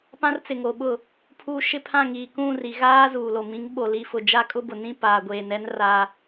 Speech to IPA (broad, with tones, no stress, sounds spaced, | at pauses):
p ã˦ r t͡s ɪ˨ ŋ o˨ ɓ ʊ˦˨ | pʰ uː˦ ʃ ɪ˦ pʰ ã˦˨ ŋ iː˨ k ũ˦˨ r i˨ ɣ aː˦ z uː˨ l o˨ m ĩ˨˦ ŋ ɓ o˨ l i˨ f ʊ˨ d͡ʒ a˦ kʼ ʊ˦ b ʊ˨ n ĩ˦ p aː˨ ɡʷ eː˨ n ɛ˦ n r a˦